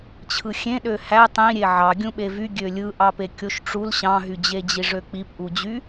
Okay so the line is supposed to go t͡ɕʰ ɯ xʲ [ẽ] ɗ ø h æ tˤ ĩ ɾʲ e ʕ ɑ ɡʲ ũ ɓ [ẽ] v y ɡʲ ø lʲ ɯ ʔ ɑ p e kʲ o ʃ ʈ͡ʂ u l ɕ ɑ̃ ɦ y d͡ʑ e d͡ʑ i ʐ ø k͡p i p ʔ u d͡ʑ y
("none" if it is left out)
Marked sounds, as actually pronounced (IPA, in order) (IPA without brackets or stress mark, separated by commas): ẽ, e